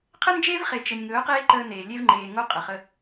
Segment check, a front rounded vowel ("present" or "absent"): absent